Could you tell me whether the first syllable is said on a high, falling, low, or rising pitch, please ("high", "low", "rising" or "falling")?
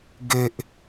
low